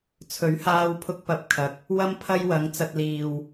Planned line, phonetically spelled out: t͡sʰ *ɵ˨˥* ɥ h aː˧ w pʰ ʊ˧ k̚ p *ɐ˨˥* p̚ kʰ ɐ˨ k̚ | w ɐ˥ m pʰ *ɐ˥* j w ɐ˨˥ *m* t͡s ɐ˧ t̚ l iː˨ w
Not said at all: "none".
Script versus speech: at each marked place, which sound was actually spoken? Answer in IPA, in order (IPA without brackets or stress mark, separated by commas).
ɵ˨˥, ɐ˨˥, ɐ˥, ŋ